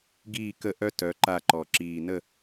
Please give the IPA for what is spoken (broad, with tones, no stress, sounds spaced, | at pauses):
ɡ iː˥˨ k ə˥˨ ʔ œ˥ t œ˨˦ ǃ a˥˨ ǃ ɔ˨˩ ǁ iː˨˩ n ə˥˨